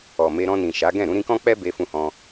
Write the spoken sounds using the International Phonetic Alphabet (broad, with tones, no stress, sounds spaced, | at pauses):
ɔ˨ m e˧ ɾ ɔ̃˧ n ĩ˨ ʃ a˨˦ ɡ ɛ̃˦˨ ɾ ũ˧ ɾ ĩ˧ k ɔ̃˦ k͡p ɛ˦ b e˧ f ũ˧ h ɔ̃˧